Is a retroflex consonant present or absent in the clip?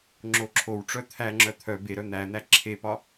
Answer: present